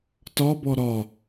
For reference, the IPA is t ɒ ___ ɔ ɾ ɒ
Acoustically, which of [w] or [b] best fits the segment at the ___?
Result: b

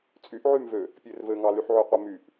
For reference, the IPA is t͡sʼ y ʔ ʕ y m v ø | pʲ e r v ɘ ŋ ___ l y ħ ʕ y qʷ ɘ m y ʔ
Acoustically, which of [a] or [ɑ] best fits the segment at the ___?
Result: ɑ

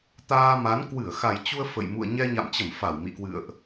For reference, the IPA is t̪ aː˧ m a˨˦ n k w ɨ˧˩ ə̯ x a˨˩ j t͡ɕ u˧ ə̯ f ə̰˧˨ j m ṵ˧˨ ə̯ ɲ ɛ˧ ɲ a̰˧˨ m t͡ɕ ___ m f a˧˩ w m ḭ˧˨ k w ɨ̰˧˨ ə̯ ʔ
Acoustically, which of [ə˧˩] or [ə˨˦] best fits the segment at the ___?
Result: ə˧˩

